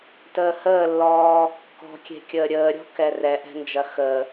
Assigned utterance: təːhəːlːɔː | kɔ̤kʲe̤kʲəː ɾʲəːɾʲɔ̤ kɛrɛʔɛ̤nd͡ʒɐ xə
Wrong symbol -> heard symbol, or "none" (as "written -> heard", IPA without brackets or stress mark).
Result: none